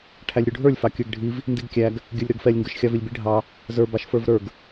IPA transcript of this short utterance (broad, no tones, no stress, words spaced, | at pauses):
ʈʰælʲɾʲuɖʱə˞lʲ fɑkʲə˞ɡɖʱiv | ndiɡkʲæɡ | ɡʲə˞lʲɾə˞ɡfɛlʲ ŋɡə˞ʃxʲɑvilʲbi ɖʱɑ | zə˞ bɑʃfə˞vɾə˞ɡ